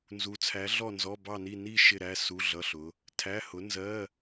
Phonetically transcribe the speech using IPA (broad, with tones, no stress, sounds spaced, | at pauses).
n z u˨˥ t͡sʰ æ˨˥ ɮ ɔ˥˧ n z ɔ˧˥˧ b ɑ˥˧ n i˥˧ n i˥˧ ʃ ɪ˥˧ ɾ æ˧˥˧ s u˧˥˧ ɮ ʌ˧˥˧ ɬ ʊ˨˥ | tʰ æ˧˥˧ h ʊ˨˥ n z ɜ˧˥˧